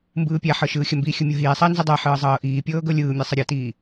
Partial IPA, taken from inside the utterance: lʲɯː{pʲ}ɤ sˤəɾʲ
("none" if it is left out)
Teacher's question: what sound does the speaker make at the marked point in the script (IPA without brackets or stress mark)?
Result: mʲ